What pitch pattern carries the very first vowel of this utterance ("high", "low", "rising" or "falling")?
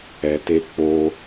low